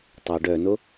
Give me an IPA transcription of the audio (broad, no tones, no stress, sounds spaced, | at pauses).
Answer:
tˤ o ɖ œ n o